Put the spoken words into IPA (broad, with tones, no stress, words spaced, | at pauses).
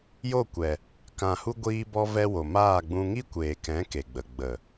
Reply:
jo˦˨kʷɛ˨ | kã˨hu˧ ɡʷiː˧bɔ˧vɛ˧wo˨ maː˦˨ɡ͡bũ˧ ŋi˦kʷeː˨kɛ̃˨˦ ke˨ɡ͡bə˨ɡ͡bə˨